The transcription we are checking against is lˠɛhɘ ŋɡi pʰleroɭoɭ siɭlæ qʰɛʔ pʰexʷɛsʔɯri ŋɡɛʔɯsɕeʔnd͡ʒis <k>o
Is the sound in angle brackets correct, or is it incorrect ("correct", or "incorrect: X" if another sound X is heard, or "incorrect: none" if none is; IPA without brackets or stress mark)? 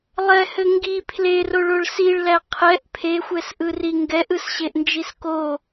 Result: correct